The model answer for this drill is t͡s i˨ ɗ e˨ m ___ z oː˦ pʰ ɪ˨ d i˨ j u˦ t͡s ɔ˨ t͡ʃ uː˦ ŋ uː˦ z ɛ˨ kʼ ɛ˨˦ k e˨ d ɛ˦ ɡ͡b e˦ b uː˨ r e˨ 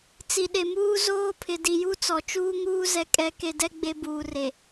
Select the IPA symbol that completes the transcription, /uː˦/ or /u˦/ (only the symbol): uː˦